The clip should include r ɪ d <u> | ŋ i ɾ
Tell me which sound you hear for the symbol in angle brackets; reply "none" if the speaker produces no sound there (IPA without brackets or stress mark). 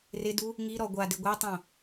u